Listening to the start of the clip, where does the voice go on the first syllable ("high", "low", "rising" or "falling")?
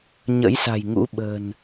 rising